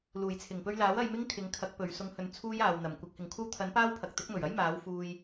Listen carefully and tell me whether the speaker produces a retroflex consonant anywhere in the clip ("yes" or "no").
no